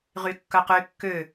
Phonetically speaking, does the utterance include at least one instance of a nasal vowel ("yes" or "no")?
no